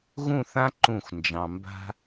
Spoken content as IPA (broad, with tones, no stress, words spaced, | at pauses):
ɣũ˥˧θã˥ ǃũ˧˩xʷ nd͡ʒɑ̃˧ mba̤˥